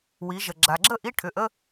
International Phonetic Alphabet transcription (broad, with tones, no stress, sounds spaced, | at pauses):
w i˩˧ ʒ ə˩ ɡ͡ǁ a˩ ɡ͡ǁ ə˥˨ ʔ i˧˥˧ ʈʰ ʏ˩˧˩ ʔ ə˧˥˧